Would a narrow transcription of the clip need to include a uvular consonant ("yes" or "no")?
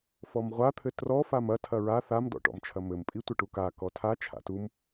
yes